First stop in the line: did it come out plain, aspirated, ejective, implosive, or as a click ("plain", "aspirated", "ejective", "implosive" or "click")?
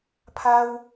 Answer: aspirated